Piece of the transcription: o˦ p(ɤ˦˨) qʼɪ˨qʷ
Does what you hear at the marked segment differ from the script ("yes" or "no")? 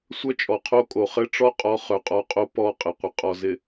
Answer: yes